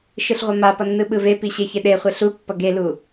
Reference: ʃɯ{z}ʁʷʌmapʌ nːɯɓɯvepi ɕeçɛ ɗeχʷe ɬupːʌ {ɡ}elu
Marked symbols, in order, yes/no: no, yes

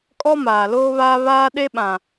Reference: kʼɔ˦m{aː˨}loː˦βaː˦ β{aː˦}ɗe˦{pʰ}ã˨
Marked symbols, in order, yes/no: yes, yes, no

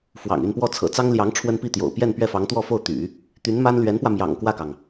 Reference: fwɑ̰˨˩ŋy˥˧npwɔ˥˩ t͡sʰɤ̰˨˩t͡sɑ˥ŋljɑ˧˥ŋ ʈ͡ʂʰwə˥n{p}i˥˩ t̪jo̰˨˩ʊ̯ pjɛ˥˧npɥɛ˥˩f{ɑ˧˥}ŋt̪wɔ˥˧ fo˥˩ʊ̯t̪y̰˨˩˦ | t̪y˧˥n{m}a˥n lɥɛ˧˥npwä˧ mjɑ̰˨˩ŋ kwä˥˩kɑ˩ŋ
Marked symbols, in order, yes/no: yes, yes, yes

